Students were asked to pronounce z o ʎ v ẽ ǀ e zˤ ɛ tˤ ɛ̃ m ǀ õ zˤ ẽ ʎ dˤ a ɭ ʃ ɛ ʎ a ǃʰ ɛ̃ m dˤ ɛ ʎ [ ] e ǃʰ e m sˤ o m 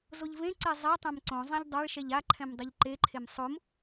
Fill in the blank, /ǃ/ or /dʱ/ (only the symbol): ǃ